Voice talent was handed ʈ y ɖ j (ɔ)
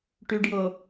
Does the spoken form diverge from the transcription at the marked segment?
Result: yes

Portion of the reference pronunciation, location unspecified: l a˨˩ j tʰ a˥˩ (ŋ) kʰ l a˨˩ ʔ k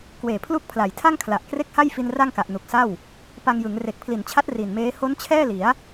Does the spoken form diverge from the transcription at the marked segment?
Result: no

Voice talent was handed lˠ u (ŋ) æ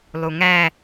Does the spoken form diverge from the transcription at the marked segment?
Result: no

